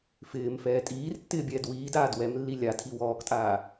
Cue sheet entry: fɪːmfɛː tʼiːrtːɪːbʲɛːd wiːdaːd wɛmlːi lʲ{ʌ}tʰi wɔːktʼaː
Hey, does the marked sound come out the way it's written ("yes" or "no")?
no